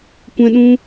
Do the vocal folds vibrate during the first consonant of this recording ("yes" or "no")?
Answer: no